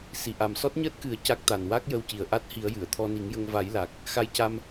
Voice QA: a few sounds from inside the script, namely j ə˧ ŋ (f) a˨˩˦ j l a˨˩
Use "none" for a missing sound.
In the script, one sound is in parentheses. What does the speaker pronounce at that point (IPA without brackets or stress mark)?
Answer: v